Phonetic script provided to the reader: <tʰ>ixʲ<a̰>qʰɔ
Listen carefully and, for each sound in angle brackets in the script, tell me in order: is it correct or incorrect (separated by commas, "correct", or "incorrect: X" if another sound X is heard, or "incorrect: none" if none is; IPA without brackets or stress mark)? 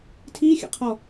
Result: correct, incorrect: ə̰